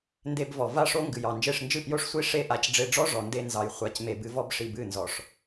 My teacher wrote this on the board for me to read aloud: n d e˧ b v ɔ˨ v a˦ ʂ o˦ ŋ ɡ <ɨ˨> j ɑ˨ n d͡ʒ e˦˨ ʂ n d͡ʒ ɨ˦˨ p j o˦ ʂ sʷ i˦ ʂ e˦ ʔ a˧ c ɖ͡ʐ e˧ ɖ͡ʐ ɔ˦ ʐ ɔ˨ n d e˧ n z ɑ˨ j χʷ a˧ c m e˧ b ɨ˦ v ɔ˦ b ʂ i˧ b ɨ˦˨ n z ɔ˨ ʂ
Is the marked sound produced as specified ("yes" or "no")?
yes